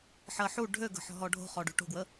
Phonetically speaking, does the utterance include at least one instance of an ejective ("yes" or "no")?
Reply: no